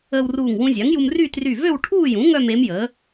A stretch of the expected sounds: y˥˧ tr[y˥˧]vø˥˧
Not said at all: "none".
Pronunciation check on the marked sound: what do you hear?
y˧˩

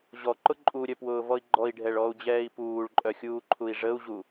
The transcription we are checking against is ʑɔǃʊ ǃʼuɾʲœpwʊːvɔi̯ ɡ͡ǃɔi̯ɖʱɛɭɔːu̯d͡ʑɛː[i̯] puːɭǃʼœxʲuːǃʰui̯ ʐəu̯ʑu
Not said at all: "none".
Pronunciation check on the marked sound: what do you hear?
i̯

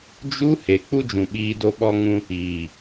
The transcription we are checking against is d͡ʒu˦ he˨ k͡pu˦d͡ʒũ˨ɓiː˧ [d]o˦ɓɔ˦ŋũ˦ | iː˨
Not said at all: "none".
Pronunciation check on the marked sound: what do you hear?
d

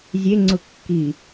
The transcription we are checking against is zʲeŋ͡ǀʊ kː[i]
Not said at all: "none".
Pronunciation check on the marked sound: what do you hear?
i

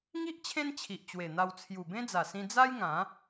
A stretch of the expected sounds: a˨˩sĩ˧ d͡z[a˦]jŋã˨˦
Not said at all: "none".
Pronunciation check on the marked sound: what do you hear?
a˦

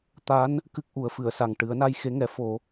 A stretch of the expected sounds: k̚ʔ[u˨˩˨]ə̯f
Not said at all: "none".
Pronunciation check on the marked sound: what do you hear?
u˨˩˦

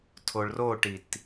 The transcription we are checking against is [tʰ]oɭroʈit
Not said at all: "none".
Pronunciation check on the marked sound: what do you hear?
tʰ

